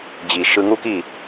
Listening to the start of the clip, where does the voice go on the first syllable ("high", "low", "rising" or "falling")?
low